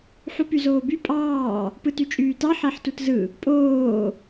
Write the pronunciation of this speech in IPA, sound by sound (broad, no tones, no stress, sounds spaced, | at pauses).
ħ u p y z oː b y pʼ ɑː | p ɯ t y t͡ʃʼ yː t ɑ ħ æ ħ t u t z ɯ | pʼ oː